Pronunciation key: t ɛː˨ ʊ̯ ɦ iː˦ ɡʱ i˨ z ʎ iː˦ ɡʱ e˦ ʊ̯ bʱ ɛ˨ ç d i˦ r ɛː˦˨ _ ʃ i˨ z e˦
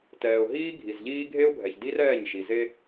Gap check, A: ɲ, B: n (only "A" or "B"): A